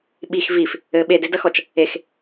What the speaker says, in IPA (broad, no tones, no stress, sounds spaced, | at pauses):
ɓ i x v i f | ɘ ɓ e d e d ɐ x ɔ t͡ʃ | e x